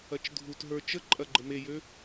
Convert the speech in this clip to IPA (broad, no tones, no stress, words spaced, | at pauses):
ɐt͡ʃdʱutɦə˞ t͡ʃə ǃʼɐɡ͡ǃəmejø